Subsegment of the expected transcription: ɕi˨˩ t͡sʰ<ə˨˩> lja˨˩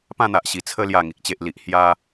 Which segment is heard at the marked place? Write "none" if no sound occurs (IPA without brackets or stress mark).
ə˧